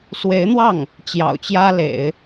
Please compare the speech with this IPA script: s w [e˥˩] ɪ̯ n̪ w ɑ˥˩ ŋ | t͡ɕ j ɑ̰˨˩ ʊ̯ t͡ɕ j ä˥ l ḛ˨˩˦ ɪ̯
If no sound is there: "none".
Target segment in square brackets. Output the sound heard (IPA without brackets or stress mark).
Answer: e˧˥